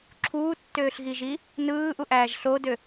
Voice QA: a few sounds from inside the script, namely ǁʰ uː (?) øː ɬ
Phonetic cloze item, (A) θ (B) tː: B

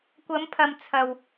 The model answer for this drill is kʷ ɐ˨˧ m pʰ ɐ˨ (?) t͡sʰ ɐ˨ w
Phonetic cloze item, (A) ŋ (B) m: B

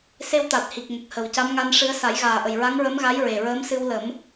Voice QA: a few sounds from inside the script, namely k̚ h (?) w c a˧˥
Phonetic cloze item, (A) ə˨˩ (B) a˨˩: A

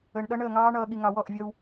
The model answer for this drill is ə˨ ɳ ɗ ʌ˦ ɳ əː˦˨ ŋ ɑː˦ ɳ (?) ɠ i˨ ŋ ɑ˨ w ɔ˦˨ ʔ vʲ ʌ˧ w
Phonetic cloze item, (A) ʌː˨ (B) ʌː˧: A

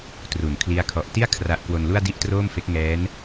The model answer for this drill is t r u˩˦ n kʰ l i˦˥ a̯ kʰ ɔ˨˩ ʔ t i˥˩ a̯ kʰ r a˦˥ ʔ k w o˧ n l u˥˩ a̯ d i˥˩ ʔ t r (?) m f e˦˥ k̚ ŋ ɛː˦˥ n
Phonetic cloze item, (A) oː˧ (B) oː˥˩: B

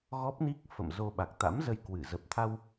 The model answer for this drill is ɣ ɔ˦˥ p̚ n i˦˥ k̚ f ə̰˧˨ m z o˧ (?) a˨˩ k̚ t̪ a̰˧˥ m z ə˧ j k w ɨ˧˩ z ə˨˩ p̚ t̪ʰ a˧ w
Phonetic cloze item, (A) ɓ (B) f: A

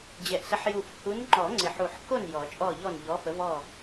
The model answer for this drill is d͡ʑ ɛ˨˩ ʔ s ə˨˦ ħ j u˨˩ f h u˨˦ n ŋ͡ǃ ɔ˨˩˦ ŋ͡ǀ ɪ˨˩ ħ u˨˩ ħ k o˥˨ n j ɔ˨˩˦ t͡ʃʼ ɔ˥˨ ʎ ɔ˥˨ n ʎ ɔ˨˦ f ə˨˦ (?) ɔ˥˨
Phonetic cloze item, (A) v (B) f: A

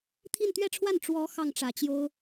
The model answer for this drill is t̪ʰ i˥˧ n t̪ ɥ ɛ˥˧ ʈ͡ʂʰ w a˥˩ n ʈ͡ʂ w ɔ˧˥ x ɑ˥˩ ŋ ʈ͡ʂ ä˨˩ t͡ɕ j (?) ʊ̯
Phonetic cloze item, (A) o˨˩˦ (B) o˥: B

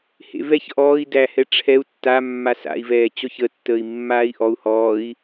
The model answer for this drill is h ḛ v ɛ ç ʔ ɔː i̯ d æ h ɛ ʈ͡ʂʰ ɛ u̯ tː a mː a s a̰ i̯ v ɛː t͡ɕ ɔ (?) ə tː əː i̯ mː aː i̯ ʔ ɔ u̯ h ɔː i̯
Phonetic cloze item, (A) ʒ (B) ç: B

